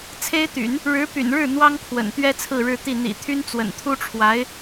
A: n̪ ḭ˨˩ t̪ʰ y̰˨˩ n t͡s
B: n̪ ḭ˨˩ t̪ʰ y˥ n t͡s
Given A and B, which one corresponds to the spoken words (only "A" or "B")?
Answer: B